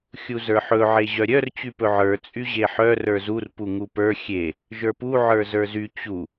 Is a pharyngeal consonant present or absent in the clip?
present